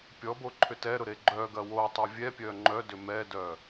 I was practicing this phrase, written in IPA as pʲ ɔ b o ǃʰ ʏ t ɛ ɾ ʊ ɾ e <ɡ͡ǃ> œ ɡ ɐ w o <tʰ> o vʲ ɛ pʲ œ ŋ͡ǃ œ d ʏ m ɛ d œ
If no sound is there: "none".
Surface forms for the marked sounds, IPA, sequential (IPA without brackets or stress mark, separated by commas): ɡ͡ǃ, tˤ